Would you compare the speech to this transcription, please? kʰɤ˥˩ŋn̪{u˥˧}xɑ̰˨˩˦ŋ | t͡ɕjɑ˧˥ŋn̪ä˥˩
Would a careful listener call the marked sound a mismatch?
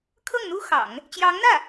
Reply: yes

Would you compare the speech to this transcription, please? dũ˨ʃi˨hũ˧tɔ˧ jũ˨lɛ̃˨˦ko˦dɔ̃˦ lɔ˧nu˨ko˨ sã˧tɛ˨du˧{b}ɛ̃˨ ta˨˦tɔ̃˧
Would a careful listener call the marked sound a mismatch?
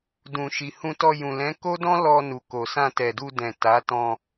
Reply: yes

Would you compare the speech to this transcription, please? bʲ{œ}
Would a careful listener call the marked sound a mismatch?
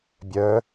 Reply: no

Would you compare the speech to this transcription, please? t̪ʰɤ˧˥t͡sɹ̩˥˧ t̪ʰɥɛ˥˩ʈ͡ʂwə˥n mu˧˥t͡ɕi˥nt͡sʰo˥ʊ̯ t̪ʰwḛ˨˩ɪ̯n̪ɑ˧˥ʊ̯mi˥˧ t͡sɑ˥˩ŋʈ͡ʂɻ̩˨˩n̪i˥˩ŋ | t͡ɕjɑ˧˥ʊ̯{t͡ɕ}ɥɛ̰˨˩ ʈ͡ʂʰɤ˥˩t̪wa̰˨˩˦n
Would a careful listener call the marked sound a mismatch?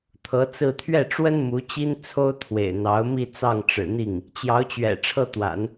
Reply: no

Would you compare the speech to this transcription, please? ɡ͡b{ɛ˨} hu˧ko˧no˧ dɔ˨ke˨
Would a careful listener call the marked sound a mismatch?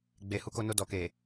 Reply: yes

